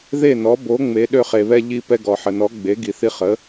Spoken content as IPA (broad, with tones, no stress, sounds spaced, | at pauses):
ð e˥˩ n ɔ˩˥ b o˩˥ ŋ͡m e˩˥ ɗ ø˧ χ e˩ β ɛ˧ ʎ i˧ p ɛ˧ ɡ ɔ˩ ħ ə˩ n ɔ˩˥ ɡ͡b e˩˥ ɡ i˩ θ i˧ χ ə˩˥